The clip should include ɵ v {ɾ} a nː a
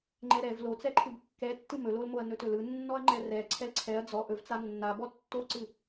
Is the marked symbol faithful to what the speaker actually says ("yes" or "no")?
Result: no